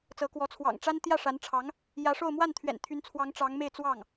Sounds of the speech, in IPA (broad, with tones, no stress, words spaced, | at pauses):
t͡sɤ˧˥kwɔ˧˥ t͡sʰwɑ̰˨˩ŋʈ͡ʂa˥n t̪jä˥˩ʂa˧˥nʈ͡ʂʰɑ˧˥ŋ | jä˧˥ʂo˥˧ʊ̯ mwa˥˩n t̪ʰɥɛ̰˨˩nt̪ʰy˧˥nt͡sʰwɑ˧˥ŋ ʈ͡ʂɑ˧˥ŋme˥˧ɪ̯t͡swɑ˥˩ŋ